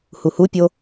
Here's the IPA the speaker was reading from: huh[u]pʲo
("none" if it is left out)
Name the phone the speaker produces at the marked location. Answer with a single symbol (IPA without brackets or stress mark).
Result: u